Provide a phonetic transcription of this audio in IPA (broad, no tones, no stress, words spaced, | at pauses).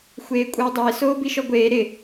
xʷeːkʷʼɪːdˤɪː soːbiʃɔɡʷeː ɾɪ